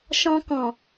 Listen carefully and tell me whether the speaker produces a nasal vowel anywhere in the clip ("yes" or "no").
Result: yes